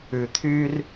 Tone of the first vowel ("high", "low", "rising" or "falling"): low